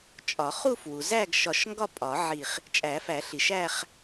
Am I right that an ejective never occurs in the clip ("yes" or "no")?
no